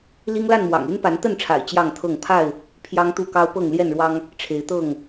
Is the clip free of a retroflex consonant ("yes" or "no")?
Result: no